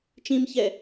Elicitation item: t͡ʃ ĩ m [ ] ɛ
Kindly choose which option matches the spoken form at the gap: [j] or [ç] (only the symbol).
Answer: ç